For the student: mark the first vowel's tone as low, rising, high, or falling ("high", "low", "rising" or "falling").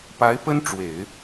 rising